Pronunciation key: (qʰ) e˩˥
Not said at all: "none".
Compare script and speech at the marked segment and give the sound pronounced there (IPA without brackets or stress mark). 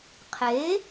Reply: qʰ